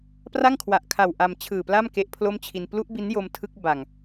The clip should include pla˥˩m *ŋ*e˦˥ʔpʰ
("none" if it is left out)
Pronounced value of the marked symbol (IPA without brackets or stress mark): k